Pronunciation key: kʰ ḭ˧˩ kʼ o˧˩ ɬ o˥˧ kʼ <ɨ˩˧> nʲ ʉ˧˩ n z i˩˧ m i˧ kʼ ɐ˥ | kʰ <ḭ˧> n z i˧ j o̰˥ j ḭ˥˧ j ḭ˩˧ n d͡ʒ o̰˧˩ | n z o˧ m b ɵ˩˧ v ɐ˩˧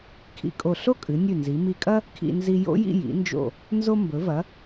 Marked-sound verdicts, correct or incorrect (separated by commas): correct, correct